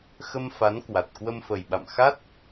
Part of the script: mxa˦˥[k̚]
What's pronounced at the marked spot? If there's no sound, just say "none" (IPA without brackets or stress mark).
t̚